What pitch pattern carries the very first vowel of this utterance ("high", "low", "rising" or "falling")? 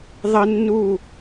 high